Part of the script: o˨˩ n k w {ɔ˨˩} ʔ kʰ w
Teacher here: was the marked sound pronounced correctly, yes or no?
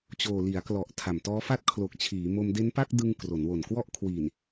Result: no